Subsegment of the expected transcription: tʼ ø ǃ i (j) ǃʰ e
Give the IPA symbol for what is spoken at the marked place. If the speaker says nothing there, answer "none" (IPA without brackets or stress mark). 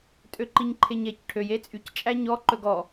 ɲ